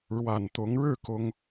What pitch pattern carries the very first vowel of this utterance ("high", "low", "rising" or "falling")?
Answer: low